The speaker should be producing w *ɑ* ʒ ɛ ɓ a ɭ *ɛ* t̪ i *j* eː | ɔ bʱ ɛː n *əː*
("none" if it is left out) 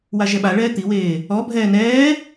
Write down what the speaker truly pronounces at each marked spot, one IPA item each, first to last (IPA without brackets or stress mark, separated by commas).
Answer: a, ɛː, w, ɛː